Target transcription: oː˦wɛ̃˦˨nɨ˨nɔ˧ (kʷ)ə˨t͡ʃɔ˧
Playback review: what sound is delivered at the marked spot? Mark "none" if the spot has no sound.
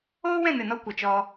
kʷ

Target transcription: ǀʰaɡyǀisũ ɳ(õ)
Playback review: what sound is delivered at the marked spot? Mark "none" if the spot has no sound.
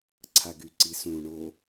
o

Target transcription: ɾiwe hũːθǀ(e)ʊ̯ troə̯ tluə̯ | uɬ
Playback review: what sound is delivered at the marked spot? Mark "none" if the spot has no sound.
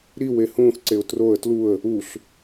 e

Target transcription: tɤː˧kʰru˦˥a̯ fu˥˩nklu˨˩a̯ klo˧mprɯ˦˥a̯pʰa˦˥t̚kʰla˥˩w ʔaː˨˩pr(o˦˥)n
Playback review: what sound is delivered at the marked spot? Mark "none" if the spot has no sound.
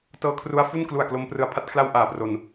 o˧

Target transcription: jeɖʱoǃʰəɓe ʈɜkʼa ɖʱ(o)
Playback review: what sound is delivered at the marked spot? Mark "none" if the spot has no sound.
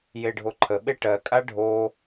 o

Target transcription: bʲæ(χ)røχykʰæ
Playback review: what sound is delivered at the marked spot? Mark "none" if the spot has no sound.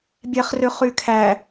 χ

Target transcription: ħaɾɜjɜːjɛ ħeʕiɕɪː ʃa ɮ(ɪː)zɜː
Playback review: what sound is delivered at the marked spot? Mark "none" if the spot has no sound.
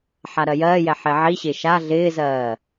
ɪː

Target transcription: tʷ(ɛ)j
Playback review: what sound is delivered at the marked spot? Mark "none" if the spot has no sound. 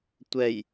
ɛ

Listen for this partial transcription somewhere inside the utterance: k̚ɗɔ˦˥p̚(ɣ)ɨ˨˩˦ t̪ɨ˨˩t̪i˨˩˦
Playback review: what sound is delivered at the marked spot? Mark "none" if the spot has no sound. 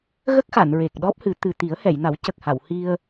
h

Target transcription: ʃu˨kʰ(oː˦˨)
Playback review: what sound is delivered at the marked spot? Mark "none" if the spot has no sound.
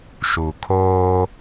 oː˦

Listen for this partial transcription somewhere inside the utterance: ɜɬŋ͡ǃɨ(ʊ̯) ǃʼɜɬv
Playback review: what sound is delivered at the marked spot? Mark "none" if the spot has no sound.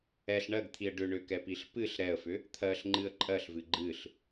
ə̯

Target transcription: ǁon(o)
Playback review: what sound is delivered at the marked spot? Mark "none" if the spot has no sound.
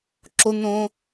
õ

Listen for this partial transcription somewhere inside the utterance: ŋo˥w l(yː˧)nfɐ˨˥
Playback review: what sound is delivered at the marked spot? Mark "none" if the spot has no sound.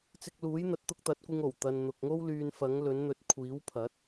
yː˧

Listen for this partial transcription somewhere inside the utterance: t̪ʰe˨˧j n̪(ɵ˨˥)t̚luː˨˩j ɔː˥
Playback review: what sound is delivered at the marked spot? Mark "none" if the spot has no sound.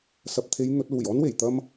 ɵ˨˥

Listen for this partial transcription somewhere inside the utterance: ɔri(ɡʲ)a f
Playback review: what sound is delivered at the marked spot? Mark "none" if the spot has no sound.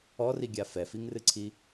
ɡʲ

